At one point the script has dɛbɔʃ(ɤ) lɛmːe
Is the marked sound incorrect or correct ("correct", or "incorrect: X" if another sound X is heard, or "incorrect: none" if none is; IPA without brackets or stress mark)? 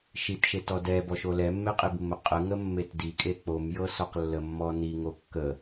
incorrect: o